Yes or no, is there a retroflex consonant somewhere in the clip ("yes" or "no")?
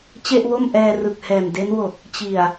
no